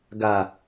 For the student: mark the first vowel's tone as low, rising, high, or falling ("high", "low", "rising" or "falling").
low